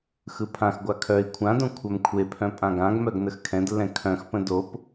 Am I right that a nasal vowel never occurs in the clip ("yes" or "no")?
no